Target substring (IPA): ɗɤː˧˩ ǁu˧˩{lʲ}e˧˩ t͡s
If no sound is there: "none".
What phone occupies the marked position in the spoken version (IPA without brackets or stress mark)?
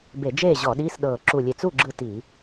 lʲ